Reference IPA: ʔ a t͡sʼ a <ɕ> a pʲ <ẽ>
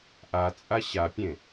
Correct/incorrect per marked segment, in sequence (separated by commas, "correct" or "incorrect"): correct, correct